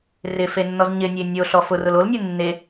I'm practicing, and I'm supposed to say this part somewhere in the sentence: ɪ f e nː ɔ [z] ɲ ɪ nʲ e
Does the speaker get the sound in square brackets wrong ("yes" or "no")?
no